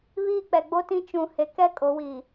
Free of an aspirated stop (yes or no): yes